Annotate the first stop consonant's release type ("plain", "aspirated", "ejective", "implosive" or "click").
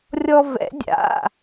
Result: plain